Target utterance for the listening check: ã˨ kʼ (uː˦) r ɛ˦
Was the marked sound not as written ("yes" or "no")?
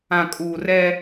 yes